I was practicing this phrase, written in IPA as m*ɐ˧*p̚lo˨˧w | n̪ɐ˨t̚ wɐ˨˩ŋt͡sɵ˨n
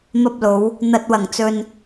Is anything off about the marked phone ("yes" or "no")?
no